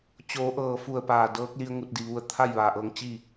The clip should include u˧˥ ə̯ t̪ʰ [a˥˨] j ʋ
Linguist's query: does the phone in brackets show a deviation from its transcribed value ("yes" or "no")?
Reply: no